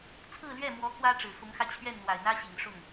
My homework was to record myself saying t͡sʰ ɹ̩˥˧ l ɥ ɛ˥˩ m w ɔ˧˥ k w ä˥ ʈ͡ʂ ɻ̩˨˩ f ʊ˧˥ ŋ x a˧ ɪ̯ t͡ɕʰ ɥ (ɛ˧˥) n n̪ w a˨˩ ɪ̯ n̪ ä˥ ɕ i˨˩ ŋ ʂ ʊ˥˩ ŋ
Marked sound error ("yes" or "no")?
yes